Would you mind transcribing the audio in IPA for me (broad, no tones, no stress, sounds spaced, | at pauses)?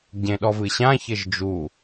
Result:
ɟ ẽ ɗ ɔ v ɨ ɕ ã ç ɘ ʒ d͡ʒ u